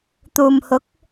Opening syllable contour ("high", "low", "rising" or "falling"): low